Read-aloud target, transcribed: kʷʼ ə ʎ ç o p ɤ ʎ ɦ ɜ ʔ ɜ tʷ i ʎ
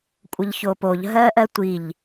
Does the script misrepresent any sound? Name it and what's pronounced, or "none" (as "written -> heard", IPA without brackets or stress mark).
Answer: ɤ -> o